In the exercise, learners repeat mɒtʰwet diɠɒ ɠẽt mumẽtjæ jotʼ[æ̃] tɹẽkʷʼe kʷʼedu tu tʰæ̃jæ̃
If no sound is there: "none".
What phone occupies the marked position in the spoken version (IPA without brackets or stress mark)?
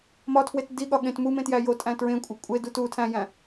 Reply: æ̃